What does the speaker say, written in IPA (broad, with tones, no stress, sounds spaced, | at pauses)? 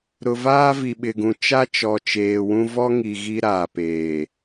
ɾ ʊ˨ v aː˦ v i˨ ɓ ɪ˨ ɡ ũ˨ t͡ʃ a˦ t͡ʃ ɔ˨ t͡ʃ eː˨ w ũ˦ v ɔ˦ ŋ i˨ ɣ i˦ ɾ aː˨ p eː˨